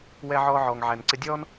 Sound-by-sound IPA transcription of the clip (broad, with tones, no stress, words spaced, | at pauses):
wɛ˦ ʕɔː˦ʕɔː˨ŋʕæ˨nǀɪ˦ dʲɔː˦n